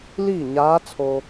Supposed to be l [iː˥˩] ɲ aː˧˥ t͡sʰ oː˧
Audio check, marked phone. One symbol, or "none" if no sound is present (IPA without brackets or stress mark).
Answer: iː˥˩